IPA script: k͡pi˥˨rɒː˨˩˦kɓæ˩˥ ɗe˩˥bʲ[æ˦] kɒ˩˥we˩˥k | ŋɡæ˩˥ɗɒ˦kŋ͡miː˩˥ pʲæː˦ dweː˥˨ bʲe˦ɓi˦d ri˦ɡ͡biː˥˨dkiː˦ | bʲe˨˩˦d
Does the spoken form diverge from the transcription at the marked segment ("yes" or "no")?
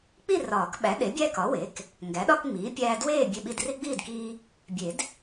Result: no